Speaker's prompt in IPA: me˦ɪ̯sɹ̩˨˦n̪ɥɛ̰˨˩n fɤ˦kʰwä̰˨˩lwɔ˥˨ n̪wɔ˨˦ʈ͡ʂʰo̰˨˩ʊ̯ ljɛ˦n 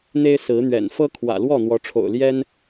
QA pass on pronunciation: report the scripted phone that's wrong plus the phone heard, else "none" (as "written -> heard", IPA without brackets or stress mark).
m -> n̪